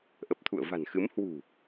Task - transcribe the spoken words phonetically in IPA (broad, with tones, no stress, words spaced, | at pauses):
ʔə˨˩p̚t̪ʰṵ˧˨ə̯va̤˨˩nxɨ˨˦m hwṳ˨˩